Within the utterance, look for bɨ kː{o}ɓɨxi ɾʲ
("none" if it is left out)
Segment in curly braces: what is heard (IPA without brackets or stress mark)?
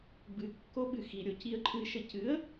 o